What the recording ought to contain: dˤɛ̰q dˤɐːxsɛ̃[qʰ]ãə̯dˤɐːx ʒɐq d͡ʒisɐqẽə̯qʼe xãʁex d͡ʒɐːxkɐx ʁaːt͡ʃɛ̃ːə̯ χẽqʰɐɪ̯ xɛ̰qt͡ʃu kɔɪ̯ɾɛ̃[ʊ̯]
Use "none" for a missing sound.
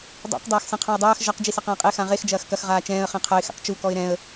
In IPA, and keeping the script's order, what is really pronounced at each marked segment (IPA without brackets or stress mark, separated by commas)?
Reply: qʰ, ə̯